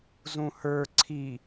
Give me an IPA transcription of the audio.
zũhə˞ ǀʰi

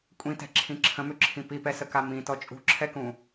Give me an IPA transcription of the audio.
kʷʼĩtɛ̤ǁʰĩ ǁʰə̃mʏǁʰĩ pipɛsəka mĩtɔ t͡ʃʼṳǁʰɛkũ

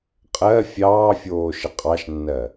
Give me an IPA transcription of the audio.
qʼɜ fʲɑːfʲoː ʃəqʼɑʃnːɜ

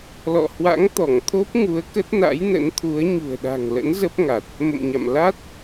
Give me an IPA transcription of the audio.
lɔ̰˧˨hwa̰˧˥ŋ t̪ɔ˧˩ŋt̪ʰo˦˥p̚ ŋu˨˦ə̯ kə˦˥t̚na̰˧˥jnə̰˧˥nt̪ʰu˨˦ə̯ ɲṳ˨˩ə̯ɗa̤˨˩ŋlə̰˧˥n zə˦˥p̚ŋa˨˩t̚ | mə̰˧˨mɲa̰˧˨m la˦˥t̚

